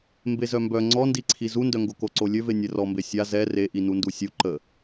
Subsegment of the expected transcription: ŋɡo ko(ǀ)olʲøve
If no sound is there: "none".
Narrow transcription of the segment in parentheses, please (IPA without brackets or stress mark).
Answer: ǀ